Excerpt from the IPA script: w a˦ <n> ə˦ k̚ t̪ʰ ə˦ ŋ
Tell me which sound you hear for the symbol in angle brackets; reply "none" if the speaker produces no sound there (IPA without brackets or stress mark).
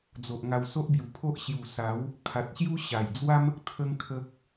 m